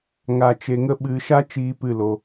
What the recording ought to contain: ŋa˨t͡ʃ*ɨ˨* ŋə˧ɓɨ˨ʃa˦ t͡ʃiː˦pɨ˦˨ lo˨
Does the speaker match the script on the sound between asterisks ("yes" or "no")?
no